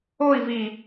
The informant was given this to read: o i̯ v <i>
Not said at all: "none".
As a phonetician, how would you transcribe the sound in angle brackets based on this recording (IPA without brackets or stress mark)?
i